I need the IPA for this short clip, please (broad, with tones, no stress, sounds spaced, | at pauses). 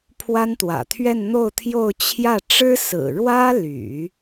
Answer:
pʰ w a˥ n t̪ w ä̰˨˩ t̪ʰ ɥ ɛ˥˧ n n̪ o˥˧ ʊ̯ t̪ʰ j o˥˧ ʊ̯ t͡ɕʰ j ä˥˩ ʈ͡ʂ ɻ̩˥ s ɹ̩˨˩ ɻ w ä˥ l y̰˨˩˦